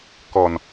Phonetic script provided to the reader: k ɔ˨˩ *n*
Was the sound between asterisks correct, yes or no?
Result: yes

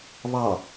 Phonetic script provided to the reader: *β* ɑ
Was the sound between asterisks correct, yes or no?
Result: yes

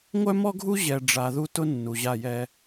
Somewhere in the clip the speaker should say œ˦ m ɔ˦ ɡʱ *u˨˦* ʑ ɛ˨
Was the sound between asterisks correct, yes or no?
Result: no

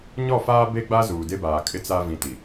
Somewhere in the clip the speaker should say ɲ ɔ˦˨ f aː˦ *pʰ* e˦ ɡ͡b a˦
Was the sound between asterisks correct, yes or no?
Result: no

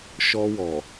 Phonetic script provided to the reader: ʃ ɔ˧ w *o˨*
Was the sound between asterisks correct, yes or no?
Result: no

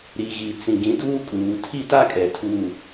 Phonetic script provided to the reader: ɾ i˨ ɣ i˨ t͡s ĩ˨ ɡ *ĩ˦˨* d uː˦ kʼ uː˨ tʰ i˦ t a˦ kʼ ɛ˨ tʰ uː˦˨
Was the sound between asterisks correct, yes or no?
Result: no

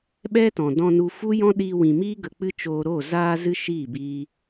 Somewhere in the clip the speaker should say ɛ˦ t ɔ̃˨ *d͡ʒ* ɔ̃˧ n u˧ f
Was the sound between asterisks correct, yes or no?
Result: no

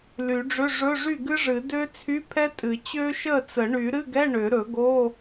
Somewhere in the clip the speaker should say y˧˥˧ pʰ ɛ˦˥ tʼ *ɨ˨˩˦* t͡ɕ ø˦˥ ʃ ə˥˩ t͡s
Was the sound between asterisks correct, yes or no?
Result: yes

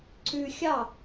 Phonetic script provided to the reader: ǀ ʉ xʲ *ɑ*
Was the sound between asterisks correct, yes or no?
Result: yes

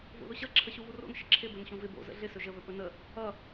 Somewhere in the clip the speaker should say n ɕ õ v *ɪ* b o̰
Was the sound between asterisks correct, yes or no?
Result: yes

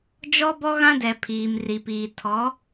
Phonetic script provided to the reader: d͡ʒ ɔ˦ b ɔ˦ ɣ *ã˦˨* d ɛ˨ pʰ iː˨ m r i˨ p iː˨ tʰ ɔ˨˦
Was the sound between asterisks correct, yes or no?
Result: no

